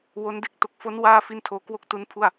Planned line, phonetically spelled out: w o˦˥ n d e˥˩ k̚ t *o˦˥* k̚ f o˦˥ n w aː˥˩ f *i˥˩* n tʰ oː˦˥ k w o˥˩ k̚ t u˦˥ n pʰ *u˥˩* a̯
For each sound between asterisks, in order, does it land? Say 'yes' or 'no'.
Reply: no, yes, yes

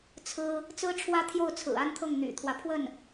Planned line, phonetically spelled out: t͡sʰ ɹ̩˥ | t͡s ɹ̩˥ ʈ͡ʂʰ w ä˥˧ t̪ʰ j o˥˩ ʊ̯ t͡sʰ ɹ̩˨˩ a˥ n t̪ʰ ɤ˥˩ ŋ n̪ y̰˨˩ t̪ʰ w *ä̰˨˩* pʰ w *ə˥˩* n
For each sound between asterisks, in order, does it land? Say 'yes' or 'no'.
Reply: no, yes

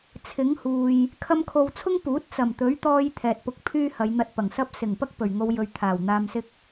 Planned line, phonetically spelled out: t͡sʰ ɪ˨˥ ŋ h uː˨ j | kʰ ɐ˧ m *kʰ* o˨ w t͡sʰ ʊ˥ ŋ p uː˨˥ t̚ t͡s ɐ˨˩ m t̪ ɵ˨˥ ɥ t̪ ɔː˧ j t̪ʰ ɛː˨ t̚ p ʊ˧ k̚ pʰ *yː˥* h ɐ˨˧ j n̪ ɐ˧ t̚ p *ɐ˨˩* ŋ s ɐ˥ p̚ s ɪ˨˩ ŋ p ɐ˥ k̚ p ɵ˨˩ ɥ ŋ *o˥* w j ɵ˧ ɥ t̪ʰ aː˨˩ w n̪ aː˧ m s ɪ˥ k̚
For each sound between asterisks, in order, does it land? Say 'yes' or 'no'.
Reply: yes, yes, yes, no

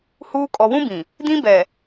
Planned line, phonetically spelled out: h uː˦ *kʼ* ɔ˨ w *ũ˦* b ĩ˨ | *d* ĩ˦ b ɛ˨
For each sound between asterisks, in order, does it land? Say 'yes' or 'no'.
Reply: yes, yes, yes

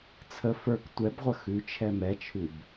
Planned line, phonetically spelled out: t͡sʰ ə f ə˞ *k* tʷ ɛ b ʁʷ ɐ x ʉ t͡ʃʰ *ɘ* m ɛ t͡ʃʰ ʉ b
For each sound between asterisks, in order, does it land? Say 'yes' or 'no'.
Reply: yes, no

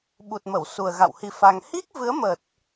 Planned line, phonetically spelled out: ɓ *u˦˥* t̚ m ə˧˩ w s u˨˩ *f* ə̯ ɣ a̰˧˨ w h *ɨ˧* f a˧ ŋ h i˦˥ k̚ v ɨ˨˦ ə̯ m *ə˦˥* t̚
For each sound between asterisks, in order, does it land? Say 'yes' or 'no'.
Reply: no, no, no, no

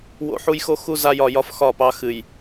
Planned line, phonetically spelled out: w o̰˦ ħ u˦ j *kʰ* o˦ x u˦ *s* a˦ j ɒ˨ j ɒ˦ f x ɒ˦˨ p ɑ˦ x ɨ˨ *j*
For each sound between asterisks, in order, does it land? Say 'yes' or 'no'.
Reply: no, no, yes

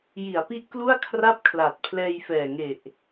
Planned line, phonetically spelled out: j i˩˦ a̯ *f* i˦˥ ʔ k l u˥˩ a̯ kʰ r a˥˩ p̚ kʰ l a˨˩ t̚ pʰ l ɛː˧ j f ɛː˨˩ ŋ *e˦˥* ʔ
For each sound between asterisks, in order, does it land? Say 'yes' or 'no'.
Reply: no, no

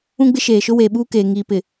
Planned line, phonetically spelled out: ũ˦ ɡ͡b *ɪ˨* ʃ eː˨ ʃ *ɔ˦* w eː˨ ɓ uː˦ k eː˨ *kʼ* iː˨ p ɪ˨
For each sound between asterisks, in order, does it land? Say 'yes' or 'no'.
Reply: no, no, no

